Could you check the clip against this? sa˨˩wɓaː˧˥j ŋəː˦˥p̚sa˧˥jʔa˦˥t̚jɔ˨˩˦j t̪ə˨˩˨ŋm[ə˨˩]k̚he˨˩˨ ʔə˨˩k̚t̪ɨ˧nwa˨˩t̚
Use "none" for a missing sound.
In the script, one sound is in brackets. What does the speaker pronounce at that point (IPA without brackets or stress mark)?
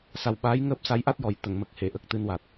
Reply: ə˨˩